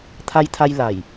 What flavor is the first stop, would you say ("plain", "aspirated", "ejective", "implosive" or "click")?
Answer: aspirated